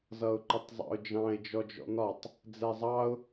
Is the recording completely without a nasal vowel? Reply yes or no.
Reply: no